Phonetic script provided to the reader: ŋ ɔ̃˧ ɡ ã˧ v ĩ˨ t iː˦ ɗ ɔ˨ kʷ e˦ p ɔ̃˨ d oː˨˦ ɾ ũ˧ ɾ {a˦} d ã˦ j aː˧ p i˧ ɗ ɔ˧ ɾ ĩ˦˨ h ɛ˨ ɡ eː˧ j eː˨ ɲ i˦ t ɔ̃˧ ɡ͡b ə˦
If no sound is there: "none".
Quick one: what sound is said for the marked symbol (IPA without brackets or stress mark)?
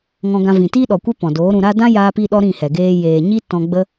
a˦